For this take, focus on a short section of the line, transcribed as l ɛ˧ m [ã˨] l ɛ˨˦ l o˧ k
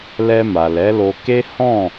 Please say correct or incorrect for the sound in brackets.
incorrect: a˨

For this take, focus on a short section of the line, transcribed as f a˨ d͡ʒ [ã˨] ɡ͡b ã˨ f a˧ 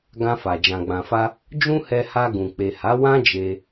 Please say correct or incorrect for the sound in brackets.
correct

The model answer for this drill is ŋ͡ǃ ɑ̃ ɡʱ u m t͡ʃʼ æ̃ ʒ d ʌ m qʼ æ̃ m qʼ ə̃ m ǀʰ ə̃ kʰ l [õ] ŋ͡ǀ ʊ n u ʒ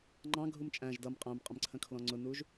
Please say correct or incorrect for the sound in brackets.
incorrect: ɔ̃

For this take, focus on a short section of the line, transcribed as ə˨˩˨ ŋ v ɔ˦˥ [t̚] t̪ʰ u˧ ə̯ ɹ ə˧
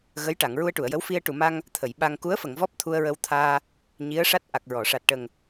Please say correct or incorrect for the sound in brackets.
incorrect: p̚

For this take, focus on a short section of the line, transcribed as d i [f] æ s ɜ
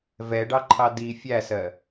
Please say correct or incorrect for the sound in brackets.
incorrect: fʲ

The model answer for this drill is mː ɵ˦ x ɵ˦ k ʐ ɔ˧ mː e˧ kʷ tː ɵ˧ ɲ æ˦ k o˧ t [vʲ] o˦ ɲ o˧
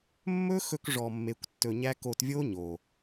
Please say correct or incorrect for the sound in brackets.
correct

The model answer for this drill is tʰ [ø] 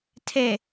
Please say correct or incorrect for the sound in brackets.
incorrect: e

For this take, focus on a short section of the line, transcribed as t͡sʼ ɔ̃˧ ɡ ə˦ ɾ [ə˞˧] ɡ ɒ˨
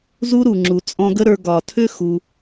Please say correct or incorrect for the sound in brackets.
correct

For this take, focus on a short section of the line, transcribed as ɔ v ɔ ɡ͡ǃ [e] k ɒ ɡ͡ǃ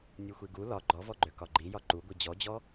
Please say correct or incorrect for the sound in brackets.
incorrect: ø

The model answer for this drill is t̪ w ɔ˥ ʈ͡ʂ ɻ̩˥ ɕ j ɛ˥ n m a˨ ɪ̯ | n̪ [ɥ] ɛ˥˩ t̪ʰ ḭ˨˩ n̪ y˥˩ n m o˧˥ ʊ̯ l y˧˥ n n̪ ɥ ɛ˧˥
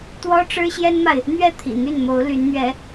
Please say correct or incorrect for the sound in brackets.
correct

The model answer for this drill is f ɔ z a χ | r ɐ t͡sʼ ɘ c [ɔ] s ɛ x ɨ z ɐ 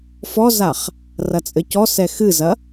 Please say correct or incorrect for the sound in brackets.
correct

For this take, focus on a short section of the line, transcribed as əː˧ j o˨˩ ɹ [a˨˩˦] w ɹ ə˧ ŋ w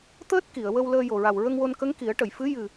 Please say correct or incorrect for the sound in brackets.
incorrect: a˨˩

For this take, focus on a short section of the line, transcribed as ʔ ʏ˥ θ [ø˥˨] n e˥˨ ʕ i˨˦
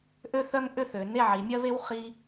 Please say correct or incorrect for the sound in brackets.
incorrect: ø˨˦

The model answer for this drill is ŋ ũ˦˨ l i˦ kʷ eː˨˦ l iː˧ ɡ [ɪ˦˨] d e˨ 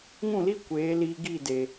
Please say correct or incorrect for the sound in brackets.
incorrect: i˦˨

